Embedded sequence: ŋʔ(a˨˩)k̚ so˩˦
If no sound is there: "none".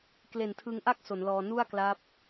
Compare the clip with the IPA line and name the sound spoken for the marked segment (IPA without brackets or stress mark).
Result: a˥˩